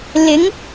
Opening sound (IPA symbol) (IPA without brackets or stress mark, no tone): l